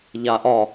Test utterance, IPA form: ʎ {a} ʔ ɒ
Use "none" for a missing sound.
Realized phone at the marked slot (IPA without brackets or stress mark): a